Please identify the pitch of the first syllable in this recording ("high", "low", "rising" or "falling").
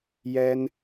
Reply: high